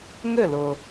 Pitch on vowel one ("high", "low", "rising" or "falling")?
falling